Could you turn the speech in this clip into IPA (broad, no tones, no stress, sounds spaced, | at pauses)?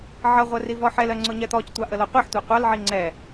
ʕ ʌ ʁʷ ɜ r i v ɔ ħ ɛ l ɜ ŋ͡ǀ ʊ ɲ ɛ t̪ ɔ c tʷ ɑ ʔ ə l ɔ qʷ i ħ tʷ ɑ qʷ ɑ l ʕ i ŋ͡ǀ ɛ